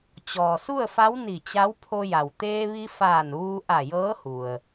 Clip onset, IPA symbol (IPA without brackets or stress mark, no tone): t͡ɕ